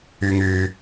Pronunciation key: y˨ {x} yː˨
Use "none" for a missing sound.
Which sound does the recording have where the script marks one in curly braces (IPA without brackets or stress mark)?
ŋ